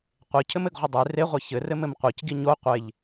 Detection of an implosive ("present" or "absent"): absent